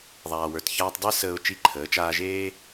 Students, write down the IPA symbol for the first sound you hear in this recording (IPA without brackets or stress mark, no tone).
ðˤ